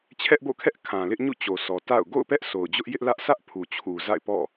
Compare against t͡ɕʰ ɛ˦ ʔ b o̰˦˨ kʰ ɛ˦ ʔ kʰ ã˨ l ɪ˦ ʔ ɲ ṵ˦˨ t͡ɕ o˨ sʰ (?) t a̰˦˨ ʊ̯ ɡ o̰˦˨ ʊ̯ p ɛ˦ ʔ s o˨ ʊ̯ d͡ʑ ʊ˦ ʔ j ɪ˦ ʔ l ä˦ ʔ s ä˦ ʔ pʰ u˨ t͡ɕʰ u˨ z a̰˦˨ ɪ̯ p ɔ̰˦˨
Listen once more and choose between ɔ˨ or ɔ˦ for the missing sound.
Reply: ɔ˨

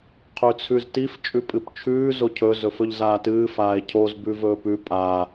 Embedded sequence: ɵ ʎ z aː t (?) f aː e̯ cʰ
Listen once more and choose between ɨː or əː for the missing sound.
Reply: ɨː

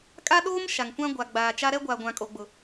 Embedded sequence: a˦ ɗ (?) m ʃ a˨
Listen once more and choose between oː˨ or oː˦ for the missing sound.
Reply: oː˦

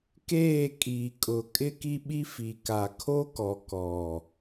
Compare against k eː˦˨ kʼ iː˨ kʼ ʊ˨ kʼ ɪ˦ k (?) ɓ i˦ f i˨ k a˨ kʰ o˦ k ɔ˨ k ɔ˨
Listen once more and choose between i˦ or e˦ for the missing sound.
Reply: i˦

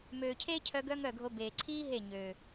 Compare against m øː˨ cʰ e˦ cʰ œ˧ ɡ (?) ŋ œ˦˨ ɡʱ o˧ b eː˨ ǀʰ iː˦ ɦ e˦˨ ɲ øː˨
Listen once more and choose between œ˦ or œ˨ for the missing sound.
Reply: œ˦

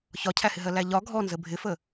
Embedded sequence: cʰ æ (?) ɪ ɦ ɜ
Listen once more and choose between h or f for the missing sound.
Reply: h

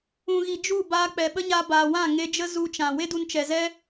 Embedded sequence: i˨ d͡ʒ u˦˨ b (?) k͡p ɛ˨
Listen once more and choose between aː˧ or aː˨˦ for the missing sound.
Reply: aː˧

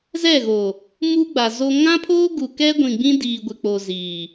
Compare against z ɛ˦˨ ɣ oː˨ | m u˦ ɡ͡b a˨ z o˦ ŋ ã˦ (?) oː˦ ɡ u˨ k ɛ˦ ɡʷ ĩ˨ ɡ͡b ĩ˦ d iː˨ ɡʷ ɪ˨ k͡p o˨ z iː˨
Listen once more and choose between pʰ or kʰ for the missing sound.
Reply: pʰ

